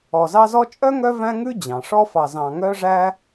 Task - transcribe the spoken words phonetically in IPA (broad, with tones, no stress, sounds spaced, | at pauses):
ɔ˨ z ɑ˦ z ɔ˦ t͡ʃʼ œ˥ ŋ œ˦ v æ̃˥ ŋ ʉ˥ d͡ʑ ɑ̃˩ ʂ ɔ˦ f ɑ˨ z ɑ̃˨ ŋ œ˦ ʐ æ˦